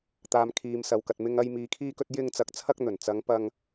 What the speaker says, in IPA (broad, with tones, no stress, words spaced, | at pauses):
t̪aː˨mkʰiː˨msɐ˨wkɐ˨t̚ mɪ˨ŋɐ˨j miː˨kʰiː˧kɵ˧t̚ jɪ˧ŋt͡sɐ˨˥k̚ t͡sʰɐ˧k̚n̪ɵ˨˩n t͡sɐ˨˧ŋpɐ˧ŋ